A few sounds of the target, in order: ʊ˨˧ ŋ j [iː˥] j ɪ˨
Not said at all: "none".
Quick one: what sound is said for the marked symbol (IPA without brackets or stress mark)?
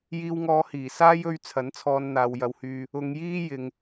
iː˥